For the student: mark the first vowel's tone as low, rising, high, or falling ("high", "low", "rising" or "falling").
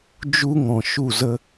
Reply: high